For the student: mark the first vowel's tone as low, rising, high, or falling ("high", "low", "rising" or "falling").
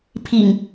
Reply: low